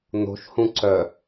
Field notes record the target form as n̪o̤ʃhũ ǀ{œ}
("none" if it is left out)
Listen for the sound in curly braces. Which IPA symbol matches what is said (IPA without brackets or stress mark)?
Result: œ